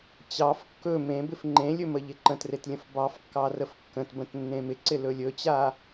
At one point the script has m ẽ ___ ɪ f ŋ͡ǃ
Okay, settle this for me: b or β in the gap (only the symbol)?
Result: b